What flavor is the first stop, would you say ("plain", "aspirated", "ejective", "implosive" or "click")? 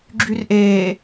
click